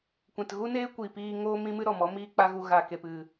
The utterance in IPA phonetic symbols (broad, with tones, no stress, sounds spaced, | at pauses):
kʷ ɛ̃˨ t ɣ u˦ n eː˦ kʷ i˨ p iː˧ ŋ oː˦ m ĩ˦ m ɨ˦ ɾ ɔ˨ m ɔ˦ m iː˦ k͡p a˦ ɣ u˧ ɣ a˨ k e˨ p ɨ˨